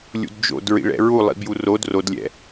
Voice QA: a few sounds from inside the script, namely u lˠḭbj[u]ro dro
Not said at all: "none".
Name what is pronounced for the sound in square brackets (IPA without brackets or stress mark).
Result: u